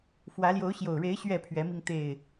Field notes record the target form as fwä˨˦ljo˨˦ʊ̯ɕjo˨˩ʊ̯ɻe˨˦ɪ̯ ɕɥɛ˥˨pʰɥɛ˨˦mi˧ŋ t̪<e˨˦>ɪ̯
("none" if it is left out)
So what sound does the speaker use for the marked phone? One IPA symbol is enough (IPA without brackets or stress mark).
e˨˩